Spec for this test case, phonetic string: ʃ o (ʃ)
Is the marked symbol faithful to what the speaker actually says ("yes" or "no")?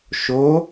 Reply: no